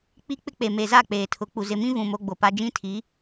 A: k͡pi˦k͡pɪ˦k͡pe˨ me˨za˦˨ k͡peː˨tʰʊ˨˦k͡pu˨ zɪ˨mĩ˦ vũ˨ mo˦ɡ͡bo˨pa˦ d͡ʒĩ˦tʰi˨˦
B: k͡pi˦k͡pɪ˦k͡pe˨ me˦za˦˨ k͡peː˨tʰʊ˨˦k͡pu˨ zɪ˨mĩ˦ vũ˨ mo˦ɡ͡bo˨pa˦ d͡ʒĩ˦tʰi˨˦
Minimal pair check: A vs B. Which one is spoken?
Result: A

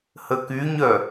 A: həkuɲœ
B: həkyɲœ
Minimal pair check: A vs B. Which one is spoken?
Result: B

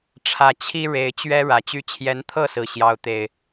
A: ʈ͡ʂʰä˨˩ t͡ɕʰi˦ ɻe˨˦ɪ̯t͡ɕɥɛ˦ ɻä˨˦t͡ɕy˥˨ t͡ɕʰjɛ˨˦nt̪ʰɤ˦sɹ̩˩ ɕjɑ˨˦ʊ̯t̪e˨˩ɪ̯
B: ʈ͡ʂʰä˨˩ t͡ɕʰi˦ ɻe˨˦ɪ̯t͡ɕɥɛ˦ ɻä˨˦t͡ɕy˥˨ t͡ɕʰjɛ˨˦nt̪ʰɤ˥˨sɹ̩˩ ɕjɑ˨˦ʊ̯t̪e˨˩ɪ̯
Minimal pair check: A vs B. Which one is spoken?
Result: B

